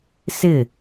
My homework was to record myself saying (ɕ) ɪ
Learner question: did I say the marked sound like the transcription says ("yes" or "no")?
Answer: no